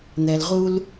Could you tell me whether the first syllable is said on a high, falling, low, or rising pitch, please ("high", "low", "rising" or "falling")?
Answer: low